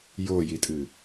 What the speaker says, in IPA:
j o j i tʼ ɨ

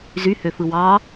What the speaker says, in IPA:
z y h ø f ɯ w ɑ

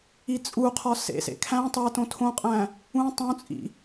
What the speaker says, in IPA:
i t͡sʼ u qʰ ɒ s ḛ s ḛ kʰ æ̃ tˤ æ t õ tʰ õ qʼ æ̃ | ũ tˤ õ t͡sʼ ḭ

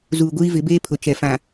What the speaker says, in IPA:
z uː˨ ɡʷ iː˦ v ɪ˨˦ b eː˦ pʰ ʊ˨ t͡ʃ ɛ˨ f ã˨

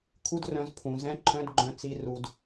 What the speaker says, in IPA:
kʰ u˦ d r œ̃˧ z pʰ ũ˨ z ɛ̃˦ ǃʰ œ̃˦ d ɡ͡ǃ œ̃˧ t͡s i˧ r u˨ d

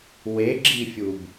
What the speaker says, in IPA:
w e ɡ͡ǁ i fʲ u b

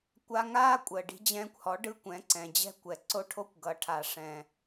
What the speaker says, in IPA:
kʷ a˧ ŋ aː˥ kʷʼ əː˩ ɖ i̤˧ d͡ʑ ɛ̃ː˧ kʷ h ɔ˩˥ ɖ ɯ˧ kʷ ɛ̃˩˥ ǀ ɛ̃˩ d͡ʑ ɛ̤˥ kʷ ɛ˩ ǀ o˥˩ ʈʰ o˥ kʷ ɡ ʌ˩˥ ʈʰ a˩ ʂ ɛ̃˩

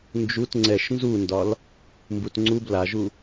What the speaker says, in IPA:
n d͡ʒ u t ŋ͡ǀ ɛ ʃ n z u n d ɒ l | m b u t ŋ͡ǀ u b l a ʒ u

